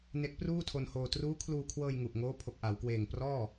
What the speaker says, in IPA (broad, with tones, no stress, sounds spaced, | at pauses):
n e˦˥ k̚ p r uː˥˩ tʰ o˧ n h oː˧ t r uː˦˥ kʰ l uː˧ kʰ w ɤː˧ j ŋ u˨˩ ʔ ŋ oː˦˥ pʰ o˨˩ k̚ ʔ a˩˦ w k w eː˨˩ ŋ p r ɔː˥˩